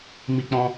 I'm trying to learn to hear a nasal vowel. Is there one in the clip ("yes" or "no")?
yes